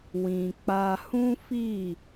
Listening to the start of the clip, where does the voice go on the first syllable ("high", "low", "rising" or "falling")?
low